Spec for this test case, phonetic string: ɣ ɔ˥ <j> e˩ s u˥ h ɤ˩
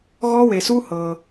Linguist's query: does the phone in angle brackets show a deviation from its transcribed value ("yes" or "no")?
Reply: yes